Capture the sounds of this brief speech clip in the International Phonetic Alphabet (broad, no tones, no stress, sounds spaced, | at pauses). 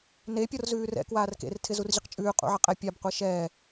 n e pʲ ɔ r z ʉː r ɛ̰ k w aː r k ḛ r tʰ ɪ z u r ʑ ɪ q t͡ʃʼ ʉː qʼ ṵ ʕ ɪ qʼ ɛ pʲ a b qʷ ɛ ʃ ɛː